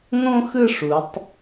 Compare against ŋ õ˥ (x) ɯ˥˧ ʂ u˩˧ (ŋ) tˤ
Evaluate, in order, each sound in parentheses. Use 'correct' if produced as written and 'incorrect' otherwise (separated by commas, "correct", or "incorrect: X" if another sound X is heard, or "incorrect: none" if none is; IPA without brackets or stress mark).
correct, incorrect: none